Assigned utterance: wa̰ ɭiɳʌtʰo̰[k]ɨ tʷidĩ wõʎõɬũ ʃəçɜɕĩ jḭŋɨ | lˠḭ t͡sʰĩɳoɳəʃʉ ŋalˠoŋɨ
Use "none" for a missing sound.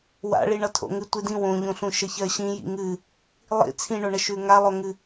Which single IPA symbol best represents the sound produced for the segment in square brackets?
ŋ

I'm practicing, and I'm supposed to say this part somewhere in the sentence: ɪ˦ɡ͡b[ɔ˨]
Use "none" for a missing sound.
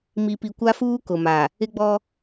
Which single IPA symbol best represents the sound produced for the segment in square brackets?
ɔ˦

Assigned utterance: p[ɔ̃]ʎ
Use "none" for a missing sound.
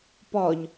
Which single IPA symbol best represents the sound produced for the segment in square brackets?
ɔ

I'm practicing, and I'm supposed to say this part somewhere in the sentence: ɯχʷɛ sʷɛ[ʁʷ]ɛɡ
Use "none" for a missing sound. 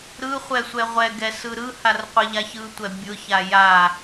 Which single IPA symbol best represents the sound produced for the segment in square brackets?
ʁʷ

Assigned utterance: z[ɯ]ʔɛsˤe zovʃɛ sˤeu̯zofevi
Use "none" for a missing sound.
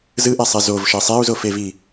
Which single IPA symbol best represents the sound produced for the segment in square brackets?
ɯ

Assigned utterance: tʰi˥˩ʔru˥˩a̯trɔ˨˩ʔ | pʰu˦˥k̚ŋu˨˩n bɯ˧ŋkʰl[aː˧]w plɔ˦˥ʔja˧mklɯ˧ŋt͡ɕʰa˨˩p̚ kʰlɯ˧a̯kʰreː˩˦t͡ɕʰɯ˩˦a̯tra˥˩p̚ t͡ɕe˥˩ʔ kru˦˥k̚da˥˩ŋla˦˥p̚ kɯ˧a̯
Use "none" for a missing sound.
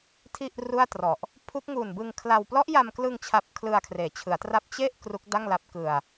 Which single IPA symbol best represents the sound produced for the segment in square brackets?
a˧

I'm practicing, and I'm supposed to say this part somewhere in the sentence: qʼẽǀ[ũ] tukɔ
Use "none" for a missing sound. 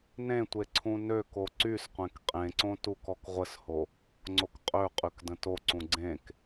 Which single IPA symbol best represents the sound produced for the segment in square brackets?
õ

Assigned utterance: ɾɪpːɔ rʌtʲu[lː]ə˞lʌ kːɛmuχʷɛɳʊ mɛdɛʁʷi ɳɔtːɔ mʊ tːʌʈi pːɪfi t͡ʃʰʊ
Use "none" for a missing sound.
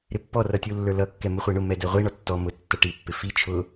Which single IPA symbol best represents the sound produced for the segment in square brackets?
lː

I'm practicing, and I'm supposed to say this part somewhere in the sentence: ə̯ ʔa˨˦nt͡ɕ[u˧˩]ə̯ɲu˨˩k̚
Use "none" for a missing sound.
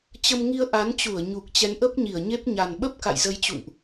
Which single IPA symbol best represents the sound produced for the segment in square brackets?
u˧˩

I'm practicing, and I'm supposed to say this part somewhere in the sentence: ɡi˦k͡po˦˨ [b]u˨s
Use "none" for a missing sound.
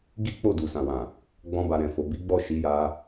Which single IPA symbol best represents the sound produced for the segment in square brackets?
d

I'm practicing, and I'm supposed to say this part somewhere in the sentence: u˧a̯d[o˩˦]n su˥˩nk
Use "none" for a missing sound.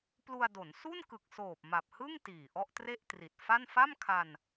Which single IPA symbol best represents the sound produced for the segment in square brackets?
o˩˦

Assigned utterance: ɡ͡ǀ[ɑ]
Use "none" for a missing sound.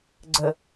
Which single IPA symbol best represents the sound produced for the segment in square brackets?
ə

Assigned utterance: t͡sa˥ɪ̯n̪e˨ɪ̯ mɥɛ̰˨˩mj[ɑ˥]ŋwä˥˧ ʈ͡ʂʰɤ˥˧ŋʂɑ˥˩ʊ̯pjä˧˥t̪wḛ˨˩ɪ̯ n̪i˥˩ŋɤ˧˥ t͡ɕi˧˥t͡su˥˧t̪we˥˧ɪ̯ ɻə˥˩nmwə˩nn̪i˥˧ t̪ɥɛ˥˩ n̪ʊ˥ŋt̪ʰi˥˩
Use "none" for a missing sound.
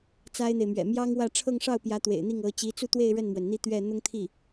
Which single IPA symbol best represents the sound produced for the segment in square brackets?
ɑ˥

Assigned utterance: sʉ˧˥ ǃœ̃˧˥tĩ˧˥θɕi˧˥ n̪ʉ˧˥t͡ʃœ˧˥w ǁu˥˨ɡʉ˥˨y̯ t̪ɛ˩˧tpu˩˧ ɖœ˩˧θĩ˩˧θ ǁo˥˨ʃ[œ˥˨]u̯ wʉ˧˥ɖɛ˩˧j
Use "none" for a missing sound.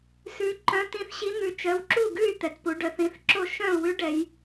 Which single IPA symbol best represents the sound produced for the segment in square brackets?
œ̃˥˨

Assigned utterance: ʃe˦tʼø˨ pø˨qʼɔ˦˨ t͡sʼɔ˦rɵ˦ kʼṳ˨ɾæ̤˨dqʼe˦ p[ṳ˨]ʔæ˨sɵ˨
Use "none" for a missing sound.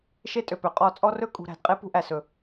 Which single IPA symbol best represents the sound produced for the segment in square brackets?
ṳ˦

